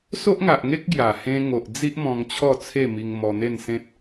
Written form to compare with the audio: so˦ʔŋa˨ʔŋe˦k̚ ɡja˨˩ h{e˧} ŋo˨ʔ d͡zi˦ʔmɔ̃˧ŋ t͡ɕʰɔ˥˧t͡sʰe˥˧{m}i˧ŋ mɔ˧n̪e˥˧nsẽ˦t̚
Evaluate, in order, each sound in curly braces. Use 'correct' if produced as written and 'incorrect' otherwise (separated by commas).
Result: incorrect, correct